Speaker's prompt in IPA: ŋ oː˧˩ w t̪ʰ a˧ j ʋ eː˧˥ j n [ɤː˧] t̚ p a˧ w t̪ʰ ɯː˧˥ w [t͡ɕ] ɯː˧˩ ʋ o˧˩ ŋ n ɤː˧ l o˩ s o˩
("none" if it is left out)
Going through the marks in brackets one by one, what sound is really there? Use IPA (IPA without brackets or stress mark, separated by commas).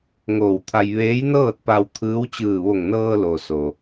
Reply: ɤː˥˨, t͡ɕ